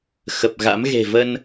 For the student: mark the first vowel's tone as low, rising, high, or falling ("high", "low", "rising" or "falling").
low